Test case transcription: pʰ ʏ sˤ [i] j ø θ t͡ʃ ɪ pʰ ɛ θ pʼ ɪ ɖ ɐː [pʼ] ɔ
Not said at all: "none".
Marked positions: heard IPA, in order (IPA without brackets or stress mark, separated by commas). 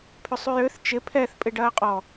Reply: y, qʼ